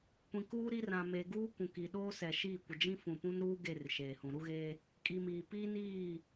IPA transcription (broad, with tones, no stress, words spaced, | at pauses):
kʷĩ˨kuː˦ɾi˦rã˨ me˨ɡuː˦ kũ˨ki˨ ɗoː˦sɛ˨ʃiː˦˨kʷɪ˨ d͡ʒĩ˦fũ˨pũ˦nɾuː˦ ɡe˦˨r ʃeː˨hũ˨ ɾu˦ɣeː˦ | kʼi˨ miː˨ piː˦niː˦˨